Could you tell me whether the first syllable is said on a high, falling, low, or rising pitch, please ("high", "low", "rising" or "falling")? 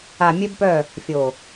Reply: low